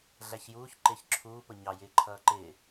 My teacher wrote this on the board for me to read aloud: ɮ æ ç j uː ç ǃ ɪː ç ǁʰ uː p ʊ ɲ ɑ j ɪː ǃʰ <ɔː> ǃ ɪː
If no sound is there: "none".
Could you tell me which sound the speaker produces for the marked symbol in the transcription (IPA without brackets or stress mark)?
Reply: ʌː